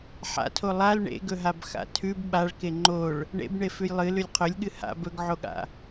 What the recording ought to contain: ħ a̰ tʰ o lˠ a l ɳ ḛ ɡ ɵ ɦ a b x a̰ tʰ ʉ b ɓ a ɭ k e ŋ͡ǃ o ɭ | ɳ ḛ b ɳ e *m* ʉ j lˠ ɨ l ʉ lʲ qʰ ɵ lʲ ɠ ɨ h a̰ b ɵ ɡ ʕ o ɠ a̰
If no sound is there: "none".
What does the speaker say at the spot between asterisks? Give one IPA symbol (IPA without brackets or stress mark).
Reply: f